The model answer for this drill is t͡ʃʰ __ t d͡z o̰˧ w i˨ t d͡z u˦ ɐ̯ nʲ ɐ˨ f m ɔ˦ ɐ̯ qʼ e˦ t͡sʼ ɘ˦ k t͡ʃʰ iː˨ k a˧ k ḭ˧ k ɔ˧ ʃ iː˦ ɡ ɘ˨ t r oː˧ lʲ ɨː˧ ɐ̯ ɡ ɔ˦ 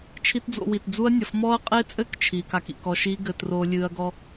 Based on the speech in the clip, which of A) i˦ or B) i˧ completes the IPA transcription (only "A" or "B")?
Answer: A